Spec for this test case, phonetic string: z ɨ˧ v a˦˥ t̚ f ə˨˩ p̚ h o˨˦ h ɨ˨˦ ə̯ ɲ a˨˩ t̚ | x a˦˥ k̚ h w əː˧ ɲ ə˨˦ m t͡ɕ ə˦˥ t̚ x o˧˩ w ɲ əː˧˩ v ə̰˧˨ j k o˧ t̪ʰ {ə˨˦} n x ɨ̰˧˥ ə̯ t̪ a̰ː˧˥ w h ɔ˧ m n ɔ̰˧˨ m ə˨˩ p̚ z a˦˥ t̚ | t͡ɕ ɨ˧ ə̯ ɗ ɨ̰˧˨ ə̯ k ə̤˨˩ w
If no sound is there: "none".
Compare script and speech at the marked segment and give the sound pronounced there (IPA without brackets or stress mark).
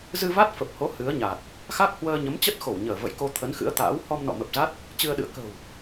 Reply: ə˨˦